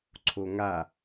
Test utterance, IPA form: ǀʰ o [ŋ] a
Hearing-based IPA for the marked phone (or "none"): ŋ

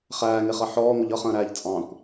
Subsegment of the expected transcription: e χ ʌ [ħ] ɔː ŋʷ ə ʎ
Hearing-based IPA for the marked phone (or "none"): ħ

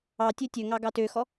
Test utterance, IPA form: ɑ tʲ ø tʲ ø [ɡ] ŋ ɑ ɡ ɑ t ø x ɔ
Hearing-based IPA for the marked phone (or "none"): none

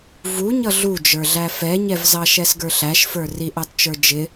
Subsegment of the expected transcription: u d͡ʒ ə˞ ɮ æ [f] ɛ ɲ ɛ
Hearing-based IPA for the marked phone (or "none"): f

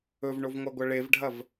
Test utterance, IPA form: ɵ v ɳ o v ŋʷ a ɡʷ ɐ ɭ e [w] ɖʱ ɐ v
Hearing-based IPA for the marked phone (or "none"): v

